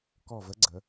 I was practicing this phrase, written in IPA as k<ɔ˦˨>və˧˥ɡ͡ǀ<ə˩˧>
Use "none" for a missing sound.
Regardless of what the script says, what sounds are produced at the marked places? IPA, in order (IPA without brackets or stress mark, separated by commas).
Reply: ɔ˦˨, ə˩˧